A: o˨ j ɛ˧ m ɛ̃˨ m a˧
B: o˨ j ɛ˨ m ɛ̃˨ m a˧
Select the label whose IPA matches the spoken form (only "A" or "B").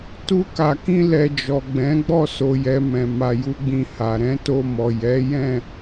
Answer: B